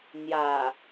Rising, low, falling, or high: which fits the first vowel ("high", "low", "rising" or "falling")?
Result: low